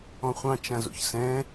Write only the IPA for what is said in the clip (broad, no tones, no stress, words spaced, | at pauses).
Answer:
ɔ̃χʷɑ̃t͡ʃãzo̰ç sɛ̃